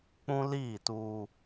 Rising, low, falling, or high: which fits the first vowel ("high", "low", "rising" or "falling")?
high